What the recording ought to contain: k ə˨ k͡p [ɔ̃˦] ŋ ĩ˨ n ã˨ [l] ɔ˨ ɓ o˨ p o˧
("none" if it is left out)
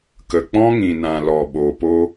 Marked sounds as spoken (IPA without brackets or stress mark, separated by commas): ɔ̃˦, l